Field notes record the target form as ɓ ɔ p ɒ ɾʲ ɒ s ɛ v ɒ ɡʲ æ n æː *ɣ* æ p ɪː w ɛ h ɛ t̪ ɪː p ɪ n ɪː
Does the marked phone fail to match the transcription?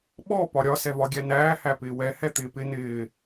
yes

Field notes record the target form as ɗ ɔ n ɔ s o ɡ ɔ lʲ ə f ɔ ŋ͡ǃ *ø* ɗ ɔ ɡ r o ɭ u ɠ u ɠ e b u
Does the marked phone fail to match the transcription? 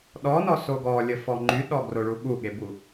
yes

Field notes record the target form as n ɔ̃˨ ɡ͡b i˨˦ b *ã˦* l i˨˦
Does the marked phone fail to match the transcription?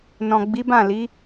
yes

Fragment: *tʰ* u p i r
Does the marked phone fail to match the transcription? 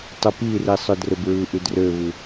yes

